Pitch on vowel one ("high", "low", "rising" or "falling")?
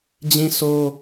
high